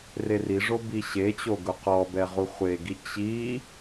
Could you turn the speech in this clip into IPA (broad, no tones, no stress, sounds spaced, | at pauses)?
r e r i ʐ o b i ɕ e t͡ɕ o ɡ ʊ q ɔ b ɛ ʁ u χʷ e ɡ i t͡ɕ i